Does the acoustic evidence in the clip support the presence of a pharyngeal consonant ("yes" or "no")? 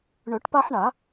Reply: yes